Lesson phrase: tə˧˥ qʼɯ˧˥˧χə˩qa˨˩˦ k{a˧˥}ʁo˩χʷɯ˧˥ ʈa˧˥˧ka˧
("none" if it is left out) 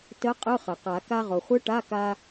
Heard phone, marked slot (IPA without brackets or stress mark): a˧